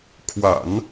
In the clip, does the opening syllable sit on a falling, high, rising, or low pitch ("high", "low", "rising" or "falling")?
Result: low